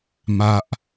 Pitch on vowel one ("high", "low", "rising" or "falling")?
high